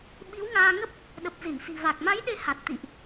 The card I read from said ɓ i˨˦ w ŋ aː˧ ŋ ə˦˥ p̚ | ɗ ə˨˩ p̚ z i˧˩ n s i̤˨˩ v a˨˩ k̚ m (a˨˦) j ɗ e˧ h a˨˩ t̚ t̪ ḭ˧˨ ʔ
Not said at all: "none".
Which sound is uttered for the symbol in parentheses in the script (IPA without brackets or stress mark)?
a˨˦